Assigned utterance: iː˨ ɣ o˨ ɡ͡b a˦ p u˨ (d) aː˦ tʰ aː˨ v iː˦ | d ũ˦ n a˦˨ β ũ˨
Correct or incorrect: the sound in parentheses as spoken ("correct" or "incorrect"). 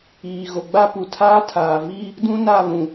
incorrect